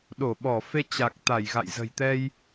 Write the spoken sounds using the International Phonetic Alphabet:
ɗ o˧˩ ɓ ɔ˧˩ f e˧ t͡ɕ a˨˩ k̚ t̪ a˧˩ j ɣ a̰˧˨ j z ə̤˨˩ j t̪ ɛ˧ j

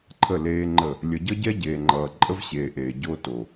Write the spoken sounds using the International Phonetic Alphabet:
ǃʰ ə˦˨ l eː˦ ŋ͡ǃ ə˦˨ | lʲ ə˨ ɟ ʌ˦ ɟ ɛ˦ ɟ eː˨ ŋ͡ǃ ʌː˨ ǃʼ ə˦ v ɕ eː˨ ʔ eː˨ ɟ o˦ t o˨

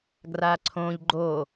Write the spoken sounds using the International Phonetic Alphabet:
ɡ r a ǀʰ õ ʎ ɡ͡ǃ o

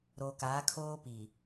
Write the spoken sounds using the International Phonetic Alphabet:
ɾ oː˨ k aː˨˦ kʰ oː˦ p i˨

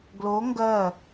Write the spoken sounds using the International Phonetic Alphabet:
ɡ l o ŋ ɡ ɜ

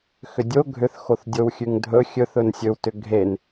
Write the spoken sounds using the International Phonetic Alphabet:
x ʏ dʲ o ɡʱ ʏ θ x o θ dʲ o w xʲ ʉ ŋ dʱ ɵ xʲ ɵ θ ɵ n sʲ ɵ w t ʏ ɡʱ e n

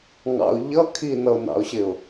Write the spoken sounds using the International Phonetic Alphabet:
ŋ ɑ̰ ʊ̯ ʎ ʌ kʰ i n ʌ ʊ̯ n ɑ̰ ʊ̯ ɕ ɪ ʊ̯

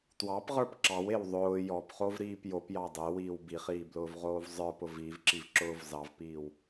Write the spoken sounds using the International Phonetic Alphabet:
t w ɑ p ʁ ə˞ p ǁ ɑ w e w ðˤ ʊː j ɔ p χ o v ɾ iː p j o p j ɑ dˤ e w iː w b i χ iː b l ʊː v ʁ oː v zˤ ə˞ p ʊ v iː v ǁ i v ǁ ʊː v z ɑ v p iː w

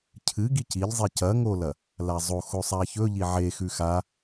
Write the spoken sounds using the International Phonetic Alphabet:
cʰ ɨ ɡ i c i ʎ zˤ i c ɐ ŋ o l ɐ | l a zˤ o x o sˤ a ç ɵ ʎ i ʕ e x ʉ x a

